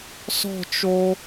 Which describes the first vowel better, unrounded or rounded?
rounded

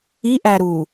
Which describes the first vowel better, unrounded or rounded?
unrounded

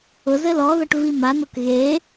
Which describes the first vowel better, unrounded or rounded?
rounded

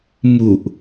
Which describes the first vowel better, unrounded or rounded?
rounded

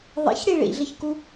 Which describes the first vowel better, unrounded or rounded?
unrounded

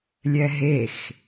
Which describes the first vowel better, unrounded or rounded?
unrounded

